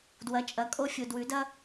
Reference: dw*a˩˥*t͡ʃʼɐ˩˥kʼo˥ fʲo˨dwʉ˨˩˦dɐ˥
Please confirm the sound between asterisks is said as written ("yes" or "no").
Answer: no